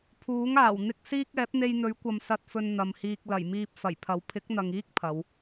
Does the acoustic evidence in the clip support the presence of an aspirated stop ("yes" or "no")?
yes